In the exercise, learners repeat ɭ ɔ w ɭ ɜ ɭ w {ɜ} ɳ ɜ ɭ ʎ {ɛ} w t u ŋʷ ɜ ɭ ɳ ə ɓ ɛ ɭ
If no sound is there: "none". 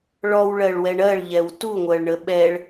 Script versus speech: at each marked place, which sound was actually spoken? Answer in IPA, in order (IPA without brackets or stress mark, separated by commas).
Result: ɛ, ɛ